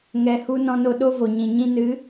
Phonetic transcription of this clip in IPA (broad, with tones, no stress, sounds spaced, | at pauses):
ŋ ɛ˨ h u˧ n ɔ̃˧ n o˧ ɗ o˦ v o˨ ɲ ĩ˨ ɲ ĩ˦ n ɨ˨˦